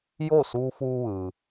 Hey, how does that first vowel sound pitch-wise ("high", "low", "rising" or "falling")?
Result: falling